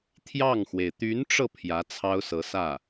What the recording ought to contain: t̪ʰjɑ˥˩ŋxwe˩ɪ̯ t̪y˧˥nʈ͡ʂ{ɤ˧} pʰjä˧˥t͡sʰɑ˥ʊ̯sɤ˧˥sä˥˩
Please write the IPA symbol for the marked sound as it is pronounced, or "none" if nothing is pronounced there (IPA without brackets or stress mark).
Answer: ɤ˧